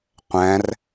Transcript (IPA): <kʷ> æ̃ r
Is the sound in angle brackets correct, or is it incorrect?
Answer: incorrect